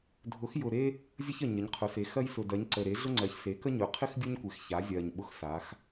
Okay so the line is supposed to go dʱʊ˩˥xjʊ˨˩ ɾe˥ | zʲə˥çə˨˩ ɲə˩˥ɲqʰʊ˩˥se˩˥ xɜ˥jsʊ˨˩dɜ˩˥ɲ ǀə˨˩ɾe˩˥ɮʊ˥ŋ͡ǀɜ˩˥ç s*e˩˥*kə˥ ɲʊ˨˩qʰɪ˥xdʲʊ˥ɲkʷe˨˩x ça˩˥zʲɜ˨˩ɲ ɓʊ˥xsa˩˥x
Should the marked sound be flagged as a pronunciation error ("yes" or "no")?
no